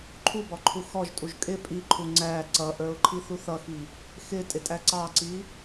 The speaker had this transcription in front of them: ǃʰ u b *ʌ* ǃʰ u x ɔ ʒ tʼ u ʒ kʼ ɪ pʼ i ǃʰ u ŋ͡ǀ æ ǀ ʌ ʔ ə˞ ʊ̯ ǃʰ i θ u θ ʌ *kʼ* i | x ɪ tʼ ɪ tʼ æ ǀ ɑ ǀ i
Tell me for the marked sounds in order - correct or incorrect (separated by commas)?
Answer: incorrect, incorrect